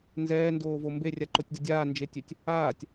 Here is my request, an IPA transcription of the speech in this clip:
nzɛːndoːvo mberʲaǃotʲdə dʲaːnd͡ʒetʲøtʲ | aːtʲ

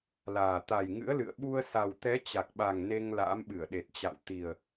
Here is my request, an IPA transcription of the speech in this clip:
laː˨˩ t̪a˨˩jŋɨ̰˧˥ə̯lɨ̰˧˨ə̯ ɓu˧ə̯sa˨˩wt̪ɛ˨˦ t͡ɕa˨˩k̚ɓa˨˩ŋ ne˧ŋ la̰ː˧˥mɓɨ˧˩ə̯ɗe˨˩t̚ t͡ɕa̰˧˨w t̪i˨˩ə̯

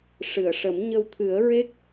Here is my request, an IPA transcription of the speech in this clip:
ʂɨ˨˩˨ə̯ʂə˨˩˦m ɲə˧wt̪ʰɨ˨˩˦ə̯ ɹe˦˥k̚

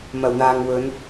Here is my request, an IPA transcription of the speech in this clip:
mɐ˨˩wn̪aː˨ŋ wɵ˨˧n

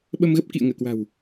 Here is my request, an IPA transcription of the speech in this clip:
ɓə˧mɣə˦˥p̚kḭ˧˨ə̯ ŋəː˧˩kwa̤˨˩w

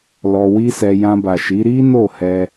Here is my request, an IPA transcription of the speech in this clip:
lɔ˧wi˦sɛ˧ jã˧ba˨ʃi˨˦ ɾi˦no˦˨hɛ˧

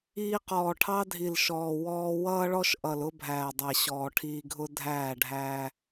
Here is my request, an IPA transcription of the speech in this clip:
iː˧qɔː˨ʈʰɑ˦ dʱi˨lʃɔː˨ wɔː˧wʌː˦ɭɔ˦ʃ ʔʌ˨lʊ˦bʱæː˨dˤæ˨ ɕɔː˨ ʈʰiː˧ɡʱʊ˦ dʱæː˦˨ ɖʱæː˧

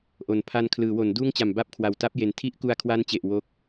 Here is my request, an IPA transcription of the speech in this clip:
ʔo˨˩n pʰa˧nkʰlɯː˩˦wo˩˦n duː˥˩ŋt͡ɕa˨˩m ba˥˩p̚kʰwa˨˩w ta˦˥p̚je˨˩n tʰi˦˥ʔku˧a̯kʰwa˦˥nt͡ɕe˨˩ʔ wo˦˥k̚

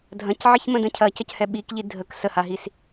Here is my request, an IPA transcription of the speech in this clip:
dʱɐ̃cʕiçmə̃də̃ cʰɐcʌchɛ ɓikʎi dʱək səhaɦis

